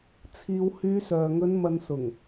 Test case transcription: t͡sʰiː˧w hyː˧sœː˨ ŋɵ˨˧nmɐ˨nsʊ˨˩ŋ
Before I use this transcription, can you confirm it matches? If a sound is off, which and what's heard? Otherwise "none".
none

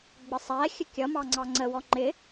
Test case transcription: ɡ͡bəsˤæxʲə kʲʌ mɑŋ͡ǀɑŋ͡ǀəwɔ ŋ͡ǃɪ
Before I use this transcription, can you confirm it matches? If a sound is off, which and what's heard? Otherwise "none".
none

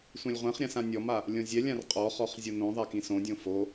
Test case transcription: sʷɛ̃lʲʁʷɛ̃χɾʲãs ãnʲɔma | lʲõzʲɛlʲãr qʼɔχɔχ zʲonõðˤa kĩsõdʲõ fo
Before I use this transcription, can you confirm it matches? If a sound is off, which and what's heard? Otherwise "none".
none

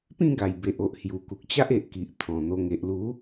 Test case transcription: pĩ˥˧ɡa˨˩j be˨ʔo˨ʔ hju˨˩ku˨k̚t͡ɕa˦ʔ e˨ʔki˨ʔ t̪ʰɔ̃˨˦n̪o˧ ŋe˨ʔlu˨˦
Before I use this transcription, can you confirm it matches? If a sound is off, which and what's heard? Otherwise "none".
ɔ̃˨˦ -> ɔ̃˨˩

